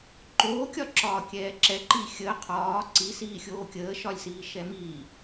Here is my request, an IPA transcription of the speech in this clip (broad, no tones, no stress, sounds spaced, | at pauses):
ǃ oː kʲ ɒ ǁ ɒː kʲ ɛː ǁ ɛ ǃ i xʲ ə qʰ ɒː ǀ i s iː xʲ oː kʲ əː ʃ ɒ lʲ s iː ʃ ɛ m iː